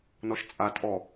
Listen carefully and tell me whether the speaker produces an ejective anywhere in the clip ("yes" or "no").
yes